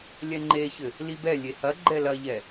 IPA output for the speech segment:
lʲɛŋ͡ǃeçɘ | libɛ lʲehɐ ɡ͡ǃɛlɐʎɛ

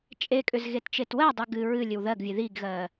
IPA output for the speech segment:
t͡ʃʼekʼʏz ɣett͡ʃetwɜdˤɨ ɡɨ ɹɨ lʲɨwðɜɡvʲɨ ðiɡɣɜ

